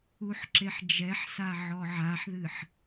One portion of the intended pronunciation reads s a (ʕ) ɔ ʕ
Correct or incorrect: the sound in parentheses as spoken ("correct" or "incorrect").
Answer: correct